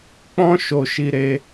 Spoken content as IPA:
k͡pɔ̃˦ ʃo˧ʃi˧ɾe˧

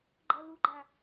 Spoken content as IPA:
ɡ͡ǃʌ luɡ͡ǃa

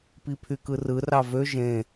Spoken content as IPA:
pipʰykɯrɯ rɑvø ʒẽ

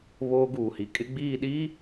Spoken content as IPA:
βoː˦ɡuː˨hi˨ kʼɪ˦ɡ͡biː˦˨ ɗiː˦

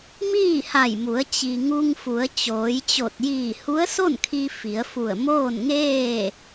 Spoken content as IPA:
miː˥˨ha˧˩jmu˩˧ə̯ t͡ɕi˩ ŋu˧ŋfu˩˧ə̯ t͡ɕoː˩˧jt͡ɕo˧˩t̚ jiː˧˩hu˧˥ə̯so˥˨nkʰi˧ fi˩˧ə̯fu˧˩ə̯moː˥˨nŋeː˥˨

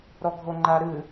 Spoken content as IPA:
ɾɔɡʱoŋ͡ǃaɾɨ

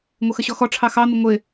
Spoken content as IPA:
ŋʷəxəɕɔxɔ ʈ͡ʂʰɑxɑn̪ɪ ŋʷɪ

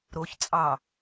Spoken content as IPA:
ɾoç t͡sʼɑ

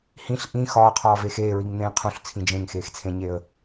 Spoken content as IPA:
hĩɬ ʔĩ xɒːqʰɒːvex eːɹiŋn̪ẽː qʰũɬt͡sʰĩ d͡ʒẽŋxeːxt͡sʰẽɲeə̯

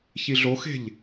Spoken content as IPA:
çiɮoxe̤ʎ

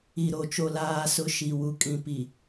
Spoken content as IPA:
i˨ɾo˨ t͡ʃo˨laː˨sʊ˨˦ ʃi˨ wu˨kʼĩ˨ pi˨

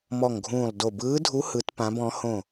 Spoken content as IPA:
mɔ˦˨ŋɡʱũː˦˨lˠdo˦˨ bɯː˧˥dʱu˧˥ hɯ˧˥tpã˧˥bɔ̃˧˥ hõ˦˨

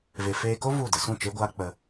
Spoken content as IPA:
ve˧ feː˧ko˦ vu˦˨də˨˦ sũ˦˨t͡ʃe˦ɡʷaː˦ k͡pə˧

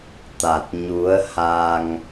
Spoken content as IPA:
t̪a˨˩t̚ ɲu˨˦ə̯ha˧ŋ

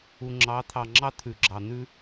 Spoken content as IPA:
u˨ŋ͡ǁɑ˨˦t̪ʰɑ˨ŋ͡ǁɑ˦ t̪ʰʉ˨ɡ͡ǁɑ˨n̪ʉ˦

